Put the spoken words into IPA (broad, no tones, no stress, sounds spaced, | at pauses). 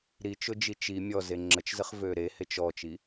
ɾ i t͡ʃ ʊ d͡ʒ i t͡ʃ i mʲ ɔ z e ŋ͡ǁ ə t͡ʃ z ə χ v ø ɾ e h e t͡ʃ ɔ t͡ʃ i